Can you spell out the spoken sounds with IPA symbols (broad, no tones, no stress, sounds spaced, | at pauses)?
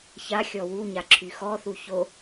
ç a xʲ ɔ w u ɲ a ǁʰ y x ɔ θ u ç o